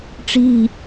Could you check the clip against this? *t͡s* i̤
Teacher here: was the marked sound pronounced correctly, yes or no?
no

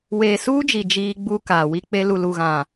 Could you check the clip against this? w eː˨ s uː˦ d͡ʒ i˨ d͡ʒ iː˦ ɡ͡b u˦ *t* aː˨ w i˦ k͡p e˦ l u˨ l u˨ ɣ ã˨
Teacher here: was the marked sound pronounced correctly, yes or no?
no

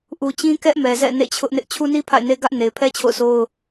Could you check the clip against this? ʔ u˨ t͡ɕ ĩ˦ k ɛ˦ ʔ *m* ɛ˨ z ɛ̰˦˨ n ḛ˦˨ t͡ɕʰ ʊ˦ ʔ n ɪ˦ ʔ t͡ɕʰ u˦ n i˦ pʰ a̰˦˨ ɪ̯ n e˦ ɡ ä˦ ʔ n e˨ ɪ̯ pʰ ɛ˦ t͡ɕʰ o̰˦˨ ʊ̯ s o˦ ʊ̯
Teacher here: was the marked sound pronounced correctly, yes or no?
yes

